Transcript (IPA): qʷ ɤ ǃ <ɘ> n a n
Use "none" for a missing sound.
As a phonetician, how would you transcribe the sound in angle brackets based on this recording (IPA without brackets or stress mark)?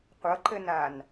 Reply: ɘ